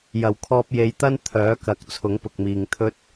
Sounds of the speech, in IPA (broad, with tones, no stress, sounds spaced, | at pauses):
j ɐ˨˩ w kʰ ɔː˧ p̚ j e˨˧ j t̪ ɐ˥ n t̪ʰ œː˨˥ k ɐ˨˥ k̚ t͡sʰ ʊ˨˥ ŋ p ʊ˨ k̚ m iː˨ ŋ t̪ʰ ɵ˥ t̚